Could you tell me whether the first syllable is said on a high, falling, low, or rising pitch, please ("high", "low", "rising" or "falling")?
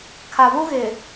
low